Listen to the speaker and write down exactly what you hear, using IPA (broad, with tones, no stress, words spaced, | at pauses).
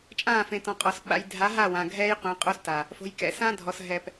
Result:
t͡ʃʼãː˦˨fẽ˨tɔ̃˨qʼɔ˨s ɓa̰˨j dʱa˨˦ɦa˦˨wã˨ ɡʱɛː˦jqʷẽ˨˦qʼo˦sta˨ | fo̤˨jkɛ̰˨sã˦ dʱɔ˨sɦɛ˨p